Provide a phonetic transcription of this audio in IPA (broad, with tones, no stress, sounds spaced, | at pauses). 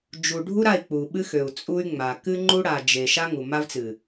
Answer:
d͡ʒ u˨ ɖʱ u˦ ɾ a˦˨ i̯ k͡p u˨ ɓ ɨ˦ x ø˨ u̯ t͡sʼ u˦ y̯ ŋ͡m a˨ k ɨ˦ ŋ͡ǃ u˦ ɽ a˨ d͡ʒ e˨ ʃ a˦ ŋ u˨ m a˦ v t͡s ɨ˨